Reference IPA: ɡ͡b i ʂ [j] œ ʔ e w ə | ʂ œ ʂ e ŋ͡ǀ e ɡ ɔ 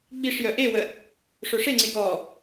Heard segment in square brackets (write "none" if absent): j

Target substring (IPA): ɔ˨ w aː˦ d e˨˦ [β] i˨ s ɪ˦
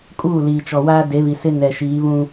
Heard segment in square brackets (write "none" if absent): β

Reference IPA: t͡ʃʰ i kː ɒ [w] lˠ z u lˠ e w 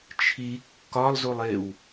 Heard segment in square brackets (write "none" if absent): none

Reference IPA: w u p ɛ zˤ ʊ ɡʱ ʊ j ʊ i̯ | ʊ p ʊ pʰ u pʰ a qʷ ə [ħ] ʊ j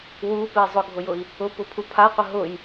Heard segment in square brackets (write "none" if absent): ɦ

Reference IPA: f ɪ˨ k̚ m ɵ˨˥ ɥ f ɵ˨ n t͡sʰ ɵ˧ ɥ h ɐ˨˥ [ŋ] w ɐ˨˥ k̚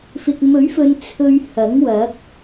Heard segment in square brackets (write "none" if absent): ŋ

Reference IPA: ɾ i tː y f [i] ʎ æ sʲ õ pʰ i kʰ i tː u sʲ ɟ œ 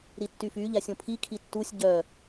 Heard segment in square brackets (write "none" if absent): y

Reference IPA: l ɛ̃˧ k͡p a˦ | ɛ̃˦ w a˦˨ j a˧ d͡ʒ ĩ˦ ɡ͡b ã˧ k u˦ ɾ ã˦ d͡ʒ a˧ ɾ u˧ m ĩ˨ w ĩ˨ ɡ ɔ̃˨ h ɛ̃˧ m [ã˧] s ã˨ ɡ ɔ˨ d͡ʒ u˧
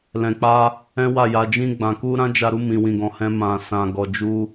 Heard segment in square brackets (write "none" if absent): ã˨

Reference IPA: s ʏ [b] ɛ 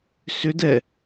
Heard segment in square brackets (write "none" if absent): d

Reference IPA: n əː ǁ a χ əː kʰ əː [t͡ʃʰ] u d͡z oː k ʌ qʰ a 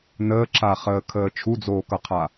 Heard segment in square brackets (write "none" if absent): t͡ʃʰ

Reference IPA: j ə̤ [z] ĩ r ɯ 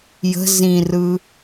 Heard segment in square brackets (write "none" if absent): z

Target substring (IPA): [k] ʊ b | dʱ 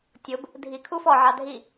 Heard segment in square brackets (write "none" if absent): tʲ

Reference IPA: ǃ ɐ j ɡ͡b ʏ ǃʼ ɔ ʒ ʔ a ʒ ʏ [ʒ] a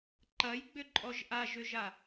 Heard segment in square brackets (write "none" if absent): ʒ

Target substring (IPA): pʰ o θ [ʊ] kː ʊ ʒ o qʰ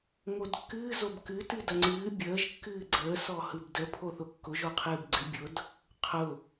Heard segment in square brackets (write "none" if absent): ʊ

